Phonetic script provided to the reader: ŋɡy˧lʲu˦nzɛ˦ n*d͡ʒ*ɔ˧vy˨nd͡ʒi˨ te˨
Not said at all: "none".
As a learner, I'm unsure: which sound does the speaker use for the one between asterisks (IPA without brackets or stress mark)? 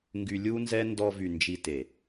d